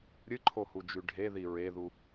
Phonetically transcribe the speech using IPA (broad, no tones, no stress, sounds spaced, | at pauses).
ɾʲ ɨ ǃʰ o h u d͡ʒ ʉ ɖʱ e ð i ɹ e ð u